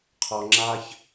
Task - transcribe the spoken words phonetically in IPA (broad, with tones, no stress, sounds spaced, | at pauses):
qʰ ɔ˨ ŋ͡ǁ a˧ ç